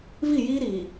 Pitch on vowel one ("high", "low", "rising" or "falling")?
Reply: falling